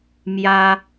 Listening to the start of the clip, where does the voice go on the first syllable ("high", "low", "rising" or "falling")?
high